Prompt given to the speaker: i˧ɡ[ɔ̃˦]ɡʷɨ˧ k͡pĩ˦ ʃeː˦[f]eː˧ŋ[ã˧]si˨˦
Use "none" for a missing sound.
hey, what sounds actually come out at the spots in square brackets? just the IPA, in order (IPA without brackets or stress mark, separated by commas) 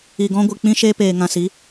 ɔ̃˦, p, ã˧